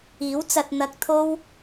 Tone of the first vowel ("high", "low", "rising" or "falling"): rising